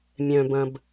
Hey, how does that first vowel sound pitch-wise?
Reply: low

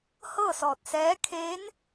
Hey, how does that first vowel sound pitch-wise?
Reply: falling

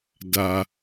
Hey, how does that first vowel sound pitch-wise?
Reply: low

